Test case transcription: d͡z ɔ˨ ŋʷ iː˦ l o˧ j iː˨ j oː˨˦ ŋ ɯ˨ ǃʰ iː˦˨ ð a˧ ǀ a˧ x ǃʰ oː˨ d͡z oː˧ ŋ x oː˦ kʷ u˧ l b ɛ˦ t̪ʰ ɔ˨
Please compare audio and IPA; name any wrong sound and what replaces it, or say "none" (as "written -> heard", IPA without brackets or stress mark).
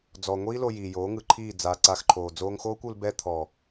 ð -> d͡z